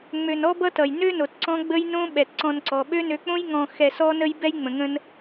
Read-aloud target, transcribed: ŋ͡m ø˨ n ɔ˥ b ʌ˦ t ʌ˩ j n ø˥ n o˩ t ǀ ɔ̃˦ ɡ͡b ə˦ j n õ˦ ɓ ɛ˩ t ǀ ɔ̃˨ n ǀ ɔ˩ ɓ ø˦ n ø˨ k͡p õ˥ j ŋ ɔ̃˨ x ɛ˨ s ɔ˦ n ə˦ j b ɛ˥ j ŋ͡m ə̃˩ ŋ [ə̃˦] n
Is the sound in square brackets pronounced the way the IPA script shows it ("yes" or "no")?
yes